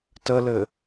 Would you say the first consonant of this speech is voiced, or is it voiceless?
voiceless